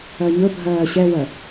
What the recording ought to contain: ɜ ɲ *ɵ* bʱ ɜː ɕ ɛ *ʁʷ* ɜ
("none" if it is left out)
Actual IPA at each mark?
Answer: ɵ, w

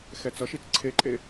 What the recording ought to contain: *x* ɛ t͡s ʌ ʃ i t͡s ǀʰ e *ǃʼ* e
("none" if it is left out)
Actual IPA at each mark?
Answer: x, ǃʼ

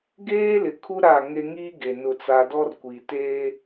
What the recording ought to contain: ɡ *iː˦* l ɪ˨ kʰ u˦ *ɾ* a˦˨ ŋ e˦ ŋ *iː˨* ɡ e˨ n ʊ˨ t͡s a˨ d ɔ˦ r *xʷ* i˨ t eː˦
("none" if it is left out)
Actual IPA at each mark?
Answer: eː˦, ɾ, iː˦, kʷ

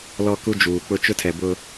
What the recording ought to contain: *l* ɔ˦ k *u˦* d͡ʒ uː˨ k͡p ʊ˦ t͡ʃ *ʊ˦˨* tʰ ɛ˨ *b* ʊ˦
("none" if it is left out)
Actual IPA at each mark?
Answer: l, u˦, ʊ˦, b

